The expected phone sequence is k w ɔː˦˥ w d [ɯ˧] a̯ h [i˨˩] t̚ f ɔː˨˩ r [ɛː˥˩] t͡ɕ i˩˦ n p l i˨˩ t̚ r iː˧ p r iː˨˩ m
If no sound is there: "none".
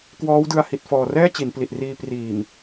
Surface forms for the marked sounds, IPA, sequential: ɯ˧, i˨˩, ɛː˥˩

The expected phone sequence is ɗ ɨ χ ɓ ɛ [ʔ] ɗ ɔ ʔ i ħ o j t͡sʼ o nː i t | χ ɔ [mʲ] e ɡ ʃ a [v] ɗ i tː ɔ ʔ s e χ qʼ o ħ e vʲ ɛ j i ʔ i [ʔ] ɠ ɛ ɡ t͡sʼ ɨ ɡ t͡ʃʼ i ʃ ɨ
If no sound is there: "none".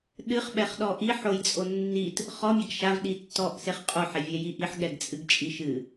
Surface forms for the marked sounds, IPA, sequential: χ, mʲ, v, ħ

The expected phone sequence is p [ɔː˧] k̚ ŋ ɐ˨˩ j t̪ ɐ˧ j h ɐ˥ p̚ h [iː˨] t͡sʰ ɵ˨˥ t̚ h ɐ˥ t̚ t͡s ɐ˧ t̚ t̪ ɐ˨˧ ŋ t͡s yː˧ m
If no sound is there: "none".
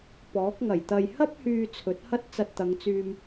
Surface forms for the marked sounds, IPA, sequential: ɔː˨˥, yː˨

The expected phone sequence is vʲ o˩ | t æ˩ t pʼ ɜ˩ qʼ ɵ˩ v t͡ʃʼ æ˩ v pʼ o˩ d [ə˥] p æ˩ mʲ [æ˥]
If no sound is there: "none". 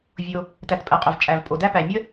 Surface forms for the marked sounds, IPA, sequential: æ˥, ə˥

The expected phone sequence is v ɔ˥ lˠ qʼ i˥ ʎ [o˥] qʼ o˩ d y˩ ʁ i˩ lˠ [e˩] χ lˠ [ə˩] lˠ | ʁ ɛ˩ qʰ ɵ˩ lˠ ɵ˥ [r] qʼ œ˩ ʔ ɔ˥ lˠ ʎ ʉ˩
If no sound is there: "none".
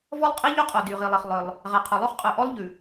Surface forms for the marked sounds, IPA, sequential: ɵ˥, e˩, œ˩, χ

